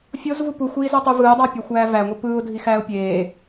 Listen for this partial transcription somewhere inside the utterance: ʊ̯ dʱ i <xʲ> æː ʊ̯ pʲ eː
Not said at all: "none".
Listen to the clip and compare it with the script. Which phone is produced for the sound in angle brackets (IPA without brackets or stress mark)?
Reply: x